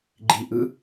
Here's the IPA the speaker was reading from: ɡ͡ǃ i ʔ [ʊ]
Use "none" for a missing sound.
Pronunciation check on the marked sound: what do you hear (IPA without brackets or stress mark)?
ɯ